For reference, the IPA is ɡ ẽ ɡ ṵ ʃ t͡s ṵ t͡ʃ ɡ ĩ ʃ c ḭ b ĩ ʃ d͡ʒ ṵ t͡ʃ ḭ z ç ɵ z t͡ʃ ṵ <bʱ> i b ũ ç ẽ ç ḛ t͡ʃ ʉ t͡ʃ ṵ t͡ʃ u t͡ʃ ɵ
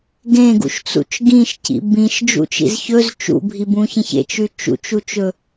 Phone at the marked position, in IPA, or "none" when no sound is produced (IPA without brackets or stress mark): bʱ